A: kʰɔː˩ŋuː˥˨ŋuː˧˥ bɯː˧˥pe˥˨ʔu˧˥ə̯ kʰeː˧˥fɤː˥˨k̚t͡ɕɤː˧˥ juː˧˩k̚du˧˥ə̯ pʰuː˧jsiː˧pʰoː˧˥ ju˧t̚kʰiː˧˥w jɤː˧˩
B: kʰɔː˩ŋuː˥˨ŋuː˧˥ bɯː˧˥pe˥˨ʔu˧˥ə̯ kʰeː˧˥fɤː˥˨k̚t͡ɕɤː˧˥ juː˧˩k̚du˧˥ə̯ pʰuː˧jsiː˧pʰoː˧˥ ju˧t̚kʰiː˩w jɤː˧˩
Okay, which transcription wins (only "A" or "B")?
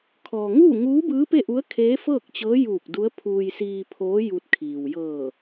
B